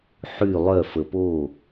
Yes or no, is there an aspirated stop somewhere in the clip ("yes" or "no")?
no